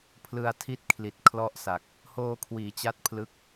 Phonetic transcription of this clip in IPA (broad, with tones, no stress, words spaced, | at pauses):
pʰlɯ˧a̯tʰi˥˩t̚kʰli˨˩t̚ kʰlɔ˥˩ʔsa˨˩k̚ | hoː˧kʰwiː˩˦t͡ɕa˦˥t̚ pʰlɯ˦˥k̚